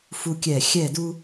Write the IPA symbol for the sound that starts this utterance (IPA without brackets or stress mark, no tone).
f